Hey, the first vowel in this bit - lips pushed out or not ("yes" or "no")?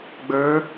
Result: no